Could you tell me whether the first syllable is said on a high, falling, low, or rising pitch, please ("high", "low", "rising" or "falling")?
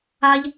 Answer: high